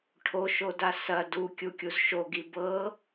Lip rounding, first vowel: rounded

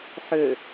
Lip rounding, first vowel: rounded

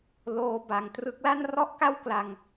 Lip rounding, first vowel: rounded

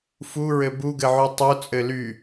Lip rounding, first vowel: rounded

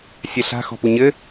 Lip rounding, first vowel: unrounded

